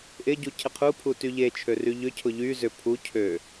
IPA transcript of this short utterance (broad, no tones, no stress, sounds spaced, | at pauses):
ʔ ɪ ɟ u cʰ ɪ qʰ u pʰ u t y ʎ e t͡ʃʰ ø r y ʎ ʏ cʰ ʊ ʎ y z ʏ pʰ u cʰ ø